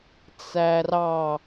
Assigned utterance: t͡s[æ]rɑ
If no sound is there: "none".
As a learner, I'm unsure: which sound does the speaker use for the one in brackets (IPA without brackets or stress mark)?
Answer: æ